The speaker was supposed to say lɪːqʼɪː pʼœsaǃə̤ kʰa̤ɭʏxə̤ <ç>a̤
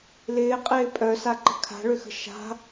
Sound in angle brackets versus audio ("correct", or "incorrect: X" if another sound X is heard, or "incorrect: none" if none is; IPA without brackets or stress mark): incorrect: ʃ